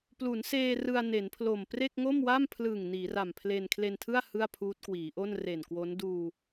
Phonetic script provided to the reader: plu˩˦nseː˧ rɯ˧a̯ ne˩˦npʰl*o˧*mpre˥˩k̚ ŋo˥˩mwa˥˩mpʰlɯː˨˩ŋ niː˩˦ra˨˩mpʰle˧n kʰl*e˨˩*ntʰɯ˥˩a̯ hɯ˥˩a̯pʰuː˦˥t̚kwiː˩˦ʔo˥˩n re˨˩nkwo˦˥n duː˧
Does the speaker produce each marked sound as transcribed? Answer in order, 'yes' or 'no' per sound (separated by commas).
no, no